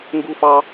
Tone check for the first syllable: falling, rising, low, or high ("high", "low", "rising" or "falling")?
high